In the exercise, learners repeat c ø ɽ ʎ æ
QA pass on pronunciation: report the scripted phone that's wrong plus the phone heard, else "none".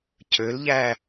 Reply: ɽ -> l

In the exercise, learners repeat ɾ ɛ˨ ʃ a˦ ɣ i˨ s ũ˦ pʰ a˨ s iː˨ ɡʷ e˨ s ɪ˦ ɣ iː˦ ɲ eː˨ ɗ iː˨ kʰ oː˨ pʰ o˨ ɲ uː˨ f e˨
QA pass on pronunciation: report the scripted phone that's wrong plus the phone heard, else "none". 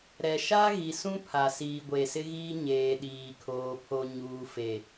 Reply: none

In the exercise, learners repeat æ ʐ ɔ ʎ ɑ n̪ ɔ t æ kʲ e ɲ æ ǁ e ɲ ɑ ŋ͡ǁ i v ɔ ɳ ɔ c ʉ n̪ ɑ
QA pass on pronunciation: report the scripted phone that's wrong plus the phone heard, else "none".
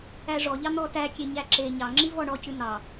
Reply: none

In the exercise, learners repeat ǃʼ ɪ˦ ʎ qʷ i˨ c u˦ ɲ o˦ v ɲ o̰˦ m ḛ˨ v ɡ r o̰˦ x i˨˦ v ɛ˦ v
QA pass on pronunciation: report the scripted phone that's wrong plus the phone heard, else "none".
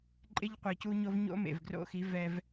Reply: none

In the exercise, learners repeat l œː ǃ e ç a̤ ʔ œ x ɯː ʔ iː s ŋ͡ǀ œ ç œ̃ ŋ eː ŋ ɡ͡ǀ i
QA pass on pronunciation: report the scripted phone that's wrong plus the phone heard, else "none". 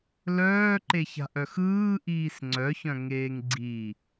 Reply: none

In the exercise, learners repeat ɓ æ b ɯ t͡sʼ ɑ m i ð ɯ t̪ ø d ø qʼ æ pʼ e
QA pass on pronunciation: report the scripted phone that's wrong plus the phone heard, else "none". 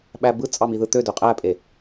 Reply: none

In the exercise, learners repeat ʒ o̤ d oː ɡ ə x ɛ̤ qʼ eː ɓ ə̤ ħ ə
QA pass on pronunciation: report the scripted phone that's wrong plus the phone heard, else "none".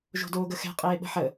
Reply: none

